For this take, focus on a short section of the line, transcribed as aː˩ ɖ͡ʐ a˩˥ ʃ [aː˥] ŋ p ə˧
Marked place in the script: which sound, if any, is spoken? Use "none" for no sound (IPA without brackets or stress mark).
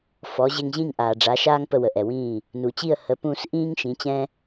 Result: aː˥